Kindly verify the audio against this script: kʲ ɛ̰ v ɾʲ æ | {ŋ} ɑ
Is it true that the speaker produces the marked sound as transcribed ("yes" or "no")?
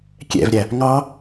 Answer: yes